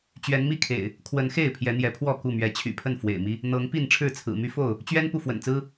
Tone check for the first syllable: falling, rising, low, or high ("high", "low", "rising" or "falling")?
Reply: rising